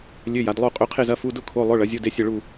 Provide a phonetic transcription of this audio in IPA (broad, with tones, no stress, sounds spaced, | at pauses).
lʲ ø˧˥˧ j a˩˥ d lˠ o˥˧ qʼ ø˧˥˧ qʰ e˥˧ z ɐ˧˥˧ f u˧˥˧ d ʊ˥˧ kʰ o˧˥˧ lˠ ʊ˧˥˧ ɭ ɐ˩˥ zʲ o˧˥˧ d e˥˧ sʲ ɐ˥˧ ɭ u˥˧